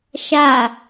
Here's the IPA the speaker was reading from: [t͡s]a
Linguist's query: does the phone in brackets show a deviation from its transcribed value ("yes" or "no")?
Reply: yes